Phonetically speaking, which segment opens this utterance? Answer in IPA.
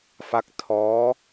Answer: f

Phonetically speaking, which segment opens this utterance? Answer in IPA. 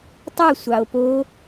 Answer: tˤ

